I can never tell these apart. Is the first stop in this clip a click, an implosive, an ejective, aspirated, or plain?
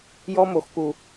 plain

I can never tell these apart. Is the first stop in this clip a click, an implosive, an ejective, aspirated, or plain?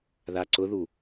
click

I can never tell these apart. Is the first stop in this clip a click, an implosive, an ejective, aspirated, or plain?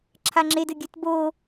click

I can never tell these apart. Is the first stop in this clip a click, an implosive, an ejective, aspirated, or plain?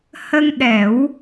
implosive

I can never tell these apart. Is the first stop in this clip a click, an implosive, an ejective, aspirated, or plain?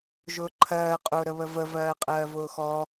click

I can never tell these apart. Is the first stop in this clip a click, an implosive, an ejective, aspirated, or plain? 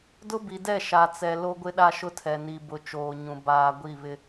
plain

